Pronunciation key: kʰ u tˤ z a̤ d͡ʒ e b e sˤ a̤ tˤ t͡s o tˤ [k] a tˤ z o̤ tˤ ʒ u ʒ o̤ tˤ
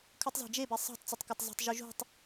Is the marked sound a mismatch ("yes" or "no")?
no